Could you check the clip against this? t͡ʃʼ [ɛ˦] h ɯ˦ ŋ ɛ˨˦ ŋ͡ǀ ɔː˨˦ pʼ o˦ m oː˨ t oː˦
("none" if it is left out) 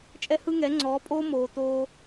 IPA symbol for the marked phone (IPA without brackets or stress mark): ɛ˦